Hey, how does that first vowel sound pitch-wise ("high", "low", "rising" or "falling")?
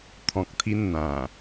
low